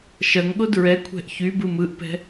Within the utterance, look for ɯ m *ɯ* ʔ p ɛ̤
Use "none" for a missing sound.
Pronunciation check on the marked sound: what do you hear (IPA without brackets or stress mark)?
ɯ